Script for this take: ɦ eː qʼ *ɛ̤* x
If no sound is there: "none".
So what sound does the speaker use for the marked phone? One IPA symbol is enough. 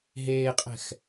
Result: ɛ̤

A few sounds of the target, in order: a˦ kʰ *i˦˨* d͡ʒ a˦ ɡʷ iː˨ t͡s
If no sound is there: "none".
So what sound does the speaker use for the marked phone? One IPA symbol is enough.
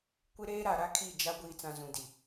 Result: i˦˨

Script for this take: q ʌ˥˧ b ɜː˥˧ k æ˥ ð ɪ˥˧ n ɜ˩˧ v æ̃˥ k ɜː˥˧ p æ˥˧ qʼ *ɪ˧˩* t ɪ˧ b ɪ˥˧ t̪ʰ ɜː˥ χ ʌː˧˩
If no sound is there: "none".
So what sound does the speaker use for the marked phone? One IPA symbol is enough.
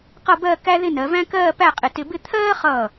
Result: ɪ˧˩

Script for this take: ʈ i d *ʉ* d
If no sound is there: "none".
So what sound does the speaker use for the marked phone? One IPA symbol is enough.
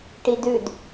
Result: ʉ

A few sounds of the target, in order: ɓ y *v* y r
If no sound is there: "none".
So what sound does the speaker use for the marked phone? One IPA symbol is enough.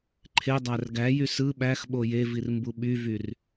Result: v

